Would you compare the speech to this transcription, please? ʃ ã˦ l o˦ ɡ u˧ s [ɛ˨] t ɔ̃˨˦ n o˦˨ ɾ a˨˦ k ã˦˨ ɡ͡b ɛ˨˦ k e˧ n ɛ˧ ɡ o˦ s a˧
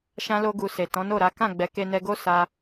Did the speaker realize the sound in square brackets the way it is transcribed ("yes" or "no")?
no